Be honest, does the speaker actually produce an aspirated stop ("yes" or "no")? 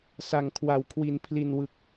yes